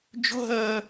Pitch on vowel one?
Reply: high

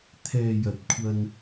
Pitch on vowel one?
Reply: low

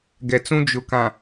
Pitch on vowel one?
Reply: low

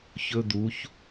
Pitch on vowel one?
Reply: high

